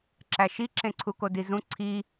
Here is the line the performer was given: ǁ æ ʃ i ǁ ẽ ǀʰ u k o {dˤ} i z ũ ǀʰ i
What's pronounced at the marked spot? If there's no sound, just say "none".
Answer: d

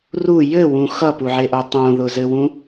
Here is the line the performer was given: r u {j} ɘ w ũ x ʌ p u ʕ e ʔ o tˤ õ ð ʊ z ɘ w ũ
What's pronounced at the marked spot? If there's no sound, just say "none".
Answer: j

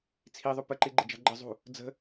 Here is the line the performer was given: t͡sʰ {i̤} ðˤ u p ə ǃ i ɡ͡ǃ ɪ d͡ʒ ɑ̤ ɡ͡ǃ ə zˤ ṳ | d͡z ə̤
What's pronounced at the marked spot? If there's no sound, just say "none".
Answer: i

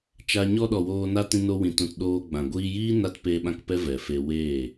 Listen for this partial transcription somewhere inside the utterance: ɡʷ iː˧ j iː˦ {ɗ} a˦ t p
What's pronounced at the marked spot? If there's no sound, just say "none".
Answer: n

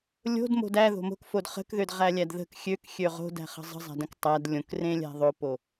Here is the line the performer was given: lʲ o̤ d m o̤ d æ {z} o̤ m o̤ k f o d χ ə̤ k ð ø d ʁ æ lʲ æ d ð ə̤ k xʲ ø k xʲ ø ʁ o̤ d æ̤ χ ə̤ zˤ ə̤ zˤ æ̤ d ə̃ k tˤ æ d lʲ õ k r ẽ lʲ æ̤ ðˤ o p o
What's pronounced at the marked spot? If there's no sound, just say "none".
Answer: ð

